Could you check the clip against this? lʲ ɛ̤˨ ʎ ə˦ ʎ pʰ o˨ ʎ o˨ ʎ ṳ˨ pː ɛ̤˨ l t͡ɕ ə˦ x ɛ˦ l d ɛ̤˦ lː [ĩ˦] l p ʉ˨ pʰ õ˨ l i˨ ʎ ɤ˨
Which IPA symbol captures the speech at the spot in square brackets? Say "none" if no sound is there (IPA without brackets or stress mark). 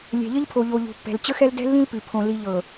ĩ˦